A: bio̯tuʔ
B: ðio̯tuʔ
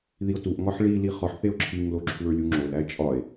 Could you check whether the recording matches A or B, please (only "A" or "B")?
B